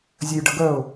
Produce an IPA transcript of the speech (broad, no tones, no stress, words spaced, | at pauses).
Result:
zʲɘjɖəɡœʊ̯